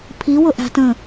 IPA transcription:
pʰiwʊʔæ̤ tə̃

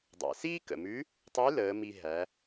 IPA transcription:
dˤæ̰˩siː˥ kə̰˩mʉ˧˥ | tˤʉ˧˥ ləː˩˧mi˧ ɦæ˩˧

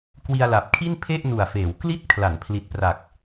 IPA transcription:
kwi˧a̯la˨˩p̚kʰi˥˩n pʰe˥˩ʔnu˨˩a̯feː˩˦wkli˥˩t̚ kʰla˩˦npʰli˨˩t̚pra˨˩k̚

